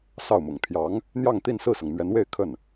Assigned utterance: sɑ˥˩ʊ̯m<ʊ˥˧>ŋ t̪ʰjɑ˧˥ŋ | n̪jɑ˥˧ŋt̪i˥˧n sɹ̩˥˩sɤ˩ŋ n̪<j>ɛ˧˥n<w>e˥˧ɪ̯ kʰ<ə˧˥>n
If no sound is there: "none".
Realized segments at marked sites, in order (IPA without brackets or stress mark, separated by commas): ʊ̰˨˩, ɥ, w, ə˥˩